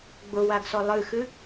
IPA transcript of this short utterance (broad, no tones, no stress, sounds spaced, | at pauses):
ɡ͡b ʊ w a ɡ s ɔ lˠ ɨ x ɨ